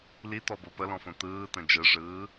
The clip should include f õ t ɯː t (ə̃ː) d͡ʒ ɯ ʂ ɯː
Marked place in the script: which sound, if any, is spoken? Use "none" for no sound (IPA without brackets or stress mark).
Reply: ə̃